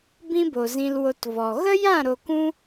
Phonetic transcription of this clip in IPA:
bĩ˦bo˨zĩ˧l wo˧tvɔ˨ ɣə˦jã˦˨ ɾo˧kũ˦

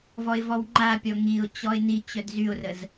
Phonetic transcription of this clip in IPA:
vɔɪ̯vɔwŋ͡ǃapʲɔ ŋiʊ̯ t͡ɕɔɪ̯ni t͡ɕœdzyʊ̯rəz

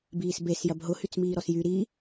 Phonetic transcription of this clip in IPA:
biːsbes jɐbɦʊ hyt͡smiːɾɔsjy ɾi

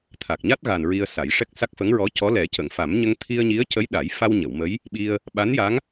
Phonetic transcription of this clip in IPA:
t̪ʰa˨˩k̚ɲa˦˥t̚ɣa˨˩n ɹi˧ə̯sa˨˩˦jʂɛ˦˥k̚sa˦˥k̚ fə˧˥ŋɹɔ˧˥cɔ˧˥ lɛ˨˩˦cə˨˩˨ŋfa˨˩˦m ɲə˧ŋt̪ʰi˧ə̯ɲi˧˥ə̯ cə˧˥jɗa˨˩˦jfa˧w ɲə˨˩˨wmə˧˥j | ɓi˧ə̯ | ɓa˧˥nja˧˥ŋ

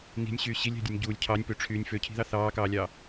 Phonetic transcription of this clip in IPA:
ni̤nʲɕyː ɕilʲæ̤dʲɯnʲ ɟuːlʲ cʰɑnʲpøʈ͡ʂʰyːnʲ føcʰi̤ðɑ θɑːkɑːlʲɑː

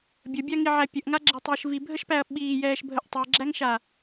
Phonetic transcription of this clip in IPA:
bʲəbʲaŋiʕæ pʲəʔŋaɡ͡ǁetˤəːʃ vibʱəʃpæɐ̯ ɓiːjɛːʃbʱəʔ tˤeɡ͡ǁæŋʃa

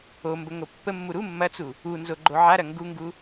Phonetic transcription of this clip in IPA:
ombə ŋopːəmːu ɾu mːɐt͡su | unzo ɡ͡ǃoʕaɾɐ ŋɡuŋɡu

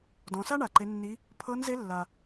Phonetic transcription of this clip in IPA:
dɔ̃˩˧sa˥ɳa˩ ǃe˩˧nːi˩˧ | pʰɤ˧˥nze˧˥lːa˩

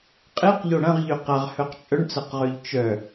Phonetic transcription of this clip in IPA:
qʼeqʎo ɽɐ̃ʁʎø qaʁhœq t͡ʃʼœɳt͡sɐqʁøʎ t͡ʃœ

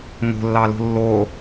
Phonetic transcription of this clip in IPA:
ŋo̤lːɑlo̤ lːo

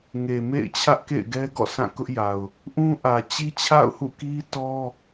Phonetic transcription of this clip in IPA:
ŋe˨mḛ˦˨ɪ̯ t͡ɕʰä˦ʔkḛ˦˨ɪ̯ɡɛ˦ ɡɔ̰˦˨sʰã˦˨kʊ˦ʔja˨ʊ̯ | ʔũ˦ʔä˨t͡ɕi˦ t͡ɕʰa̰˦˨ʊ̯hṵ˦˨ ki˦ tɔ˦

